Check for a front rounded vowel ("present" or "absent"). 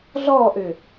present